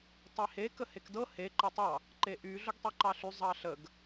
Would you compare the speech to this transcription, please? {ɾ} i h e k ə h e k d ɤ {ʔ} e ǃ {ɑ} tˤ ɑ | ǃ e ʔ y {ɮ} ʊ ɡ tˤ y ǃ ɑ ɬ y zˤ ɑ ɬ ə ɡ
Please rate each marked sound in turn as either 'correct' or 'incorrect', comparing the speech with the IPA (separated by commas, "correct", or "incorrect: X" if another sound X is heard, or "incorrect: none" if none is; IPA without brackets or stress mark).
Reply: incorrect: tˤ, incorrect: h, incorrect: ə, correct